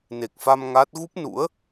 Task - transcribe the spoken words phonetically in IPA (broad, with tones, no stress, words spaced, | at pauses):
ne˨˩k̚fa˧m ŋa˦˥t̚ ɣu˦˥p̚nṵ˧˥ə̯